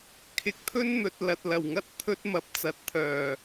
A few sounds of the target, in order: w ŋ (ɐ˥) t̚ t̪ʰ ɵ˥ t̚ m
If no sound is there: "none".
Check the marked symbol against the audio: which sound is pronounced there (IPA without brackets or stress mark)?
ɐ˥